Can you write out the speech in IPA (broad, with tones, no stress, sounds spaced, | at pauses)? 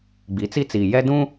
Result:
ɡ͡b i˨˦ t͡s i˦ t͡s iː˨ j ɛ˦ d ũ˦